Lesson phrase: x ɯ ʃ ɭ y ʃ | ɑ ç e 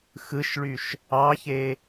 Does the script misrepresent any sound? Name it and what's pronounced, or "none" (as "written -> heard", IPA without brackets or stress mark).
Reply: none